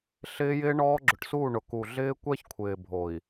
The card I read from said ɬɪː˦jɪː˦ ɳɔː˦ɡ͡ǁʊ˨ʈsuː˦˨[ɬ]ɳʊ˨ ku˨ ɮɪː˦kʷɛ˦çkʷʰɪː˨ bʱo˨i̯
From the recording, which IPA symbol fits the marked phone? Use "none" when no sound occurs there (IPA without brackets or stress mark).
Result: none